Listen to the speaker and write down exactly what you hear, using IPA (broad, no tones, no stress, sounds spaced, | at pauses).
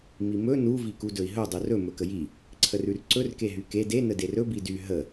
m i m ɵ n u v i k u d ɵ i̯ ɦ ɵ dˤ u r ɵ m ɵ k ə j i | ǀʰ ə r ʉ r ǀ ɵ r k e ɦ y k e d e n ə d e r ɵ b i d y ɦ ə